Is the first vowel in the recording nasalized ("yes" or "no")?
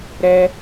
no